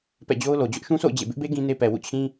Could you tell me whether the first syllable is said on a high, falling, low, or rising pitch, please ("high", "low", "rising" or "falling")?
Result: falling